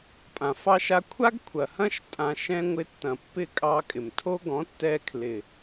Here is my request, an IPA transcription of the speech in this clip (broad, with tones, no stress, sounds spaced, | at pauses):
pʼ ã˨ f ɑ˧ ʃ a˧ kʷʰ a˦ ɡ kʷʰ ɐ˨ h ɐ̃˦ ʃ tʼ ã˧ ʃ ɛ̃˦ ŋʷ ɪ˧ tː ɐ̃˨ pː ɪ˦˨ kʼ ɑ˧ kʼ ɪ˨ m tʰ o˦ ɡ ɔ̃˨˦ tː ɛ˧ kʰ l ɪ˨